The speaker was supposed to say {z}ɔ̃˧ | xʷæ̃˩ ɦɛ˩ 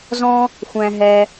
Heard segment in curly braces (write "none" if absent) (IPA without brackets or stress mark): z